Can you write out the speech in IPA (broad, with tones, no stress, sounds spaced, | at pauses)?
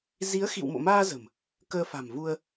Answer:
z i˨˦ ə̯ x ḭ˧˨ w m o̰˧˨ m aː˧ z ə̤˨˩ m | k əː˧ f a̤˨˩ m v u˧ ə̯